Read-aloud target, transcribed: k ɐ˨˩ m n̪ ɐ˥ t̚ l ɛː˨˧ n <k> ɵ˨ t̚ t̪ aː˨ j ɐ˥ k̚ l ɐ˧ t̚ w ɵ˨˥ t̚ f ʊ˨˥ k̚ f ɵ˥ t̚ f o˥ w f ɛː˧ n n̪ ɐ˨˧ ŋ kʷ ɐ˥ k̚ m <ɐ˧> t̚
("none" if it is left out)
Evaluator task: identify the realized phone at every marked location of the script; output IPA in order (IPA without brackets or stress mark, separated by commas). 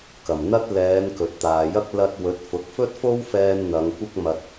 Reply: k, ɐ˧